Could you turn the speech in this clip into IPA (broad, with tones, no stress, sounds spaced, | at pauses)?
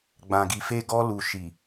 ɡ͡b ã˨ ɡ i˨ f e˧ ɡ ɔ˧ l u˨ ʃ i˨